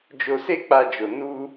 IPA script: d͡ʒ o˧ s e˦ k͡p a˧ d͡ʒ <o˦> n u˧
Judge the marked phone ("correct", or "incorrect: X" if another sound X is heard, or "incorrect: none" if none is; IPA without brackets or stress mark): incorrect: o˨